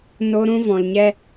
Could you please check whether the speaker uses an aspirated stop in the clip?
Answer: no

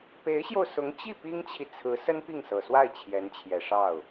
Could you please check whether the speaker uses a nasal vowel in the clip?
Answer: no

